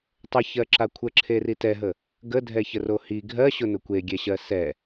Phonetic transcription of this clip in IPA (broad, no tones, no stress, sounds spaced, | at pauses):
tˤ ə ç ɜ ǁ a kʷʰ ə ǁʰ e r i t ɛ ɦ ə | ɡ ə dʱ ɛ ç ə r o h i ɡʱ ɜ ɕ ʊ n ʊ kʷ e ɡʲ ɛ ɕ ɜ s ɛ